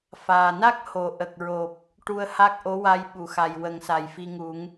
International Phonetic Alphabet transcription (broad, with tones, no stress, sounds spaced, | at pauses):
f aː˨˩ n a˦˥ k̚ h o˨˩˦ ʔ ə˨˩ k̚ ɹ o˨˩ p̚ | ʈ u˧ ə̯ h a˦˥ k̚ ʔ o˧˥ w a˧ j ɓ u˨˩˨ x a˨˩ j w ə˨˩˦ ŋ s a˨˩ j f i˧ ŋ u˨˩˦ ŋ